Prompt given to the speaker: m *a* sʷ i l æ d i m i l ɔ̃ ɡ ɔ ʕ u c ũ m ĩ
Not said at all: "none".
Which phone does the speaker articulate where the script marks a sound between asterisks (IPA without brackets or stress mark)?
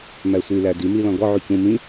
æ